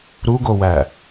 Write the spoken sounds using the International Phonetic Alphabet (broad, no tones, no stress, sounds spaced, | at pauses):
ɾ u ɡ o w æ